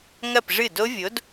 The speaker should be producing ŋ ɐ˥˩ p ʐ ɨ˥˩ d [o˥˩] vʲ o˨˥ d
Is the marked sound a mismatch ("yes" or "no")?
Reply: yes